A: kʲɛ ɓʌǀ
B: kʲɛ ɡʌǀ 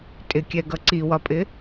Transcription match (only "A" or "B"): B